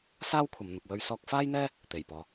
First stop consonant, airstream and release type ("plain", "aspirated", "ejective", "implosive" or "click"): aspirated